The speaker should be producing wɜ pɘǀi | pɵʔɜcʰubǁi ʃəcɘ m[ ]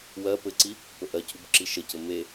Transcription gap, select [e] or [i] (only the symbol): e